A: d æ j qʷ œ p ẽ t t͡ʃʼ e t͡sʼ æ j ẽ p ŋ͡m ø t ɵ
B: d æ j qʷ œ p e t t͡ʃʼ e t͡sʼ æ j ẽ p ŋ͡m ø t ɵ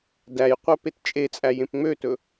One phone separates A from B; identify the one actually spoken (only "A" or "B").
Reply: B